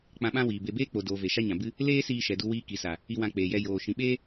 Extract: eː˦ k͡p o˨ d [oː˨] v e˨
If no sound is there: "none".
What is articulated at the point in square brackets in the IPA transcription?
oː˨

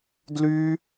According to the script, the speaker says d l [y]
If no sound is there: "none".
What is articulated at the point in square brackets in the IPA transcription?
y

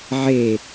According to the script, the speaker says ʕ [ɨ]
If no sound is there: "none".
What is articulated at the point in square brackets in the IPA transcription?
e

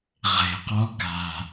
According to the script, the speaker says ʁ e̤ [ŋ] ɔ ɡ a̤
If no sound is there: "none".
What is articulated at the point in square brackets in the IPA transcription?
q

